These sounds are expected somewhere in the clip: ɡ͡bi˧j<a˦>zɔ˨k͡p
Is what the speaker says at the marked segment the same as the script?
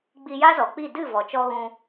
yes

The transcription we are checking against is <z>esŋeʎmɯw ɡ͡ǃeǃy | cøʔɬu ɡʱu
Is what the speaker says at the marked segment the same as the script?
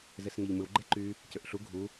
yes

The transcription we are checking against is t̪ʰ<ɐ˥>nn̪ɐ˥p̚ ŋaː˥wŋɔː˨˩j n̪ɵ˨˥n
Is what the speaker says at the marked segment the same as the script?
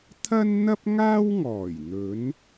yes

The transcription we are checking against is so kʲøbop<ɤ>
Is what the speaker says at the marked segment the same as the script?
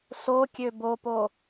no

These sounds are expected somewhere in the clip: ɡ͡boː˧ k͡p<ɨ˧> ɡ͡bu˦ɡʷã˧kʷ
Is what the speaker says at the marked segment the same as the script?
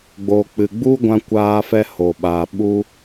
no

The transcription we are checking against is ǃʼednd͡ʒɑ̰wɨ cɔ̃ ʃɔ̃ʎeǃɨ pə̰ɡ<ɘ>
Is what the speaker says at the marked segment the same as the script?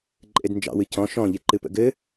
yes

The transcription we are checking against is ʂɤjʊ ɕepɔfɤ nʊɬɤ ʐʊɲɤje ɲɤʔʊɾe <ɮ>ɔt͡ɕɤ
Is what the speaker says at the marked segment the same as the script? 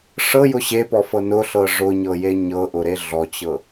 yes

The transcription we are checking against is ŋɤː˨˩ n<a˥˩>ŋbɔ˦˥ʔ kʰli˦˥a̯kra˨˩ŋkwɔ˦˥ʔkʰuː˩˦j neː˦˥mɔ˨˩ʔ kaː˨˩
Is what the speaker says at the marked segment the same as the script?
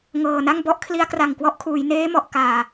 yes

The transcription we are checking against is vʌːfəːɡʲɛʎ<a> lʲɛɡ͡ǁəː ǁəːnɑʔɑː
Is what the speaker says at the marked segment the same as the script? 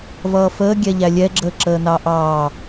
no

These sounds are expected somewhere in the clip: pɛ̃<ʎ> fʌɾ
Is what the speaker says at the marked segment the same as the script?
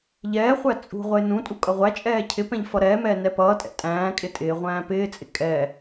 yes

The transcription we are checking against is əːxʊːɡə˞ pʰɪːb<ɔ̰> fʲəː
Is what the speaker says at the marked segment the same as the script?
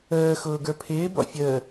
yes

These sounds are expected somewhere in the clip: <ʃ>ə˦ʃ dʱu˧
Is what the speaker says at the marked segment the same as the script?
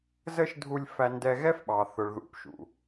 no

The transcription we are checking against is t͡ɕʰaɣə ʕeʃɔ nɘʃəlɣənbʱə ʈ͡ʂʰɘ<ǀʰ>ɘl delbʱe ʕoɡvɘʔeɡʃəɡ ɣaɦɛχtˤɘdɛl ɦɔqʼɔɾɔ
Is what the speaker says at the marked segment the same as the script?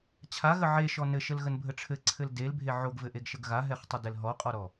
yes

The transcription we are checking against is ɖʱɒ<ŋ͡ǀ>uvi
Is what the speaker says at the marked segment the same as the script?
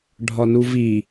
no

